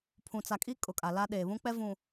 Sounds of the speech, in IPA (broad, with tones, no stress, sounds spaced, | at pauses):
pʰ ũ˨ t͡s a˨ kʼ i˦ kʼ ʊ˨ kʼ a˨ l a˦ ɗ eː˨ β ũ˦ k͡p ɛ˦ v ũ˨